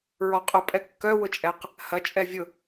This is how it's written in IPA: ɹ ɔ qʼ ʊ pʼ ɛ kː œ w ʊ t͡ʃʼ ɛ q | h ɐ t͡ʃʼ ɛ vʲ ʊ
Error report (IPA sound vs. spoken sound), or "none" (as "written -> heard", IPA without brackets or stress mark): none